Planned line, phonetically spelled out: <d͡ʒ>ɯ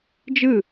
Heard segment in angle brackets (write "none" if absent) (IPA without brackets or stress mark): d͡ʒ